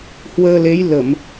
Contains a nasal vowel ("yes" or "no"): no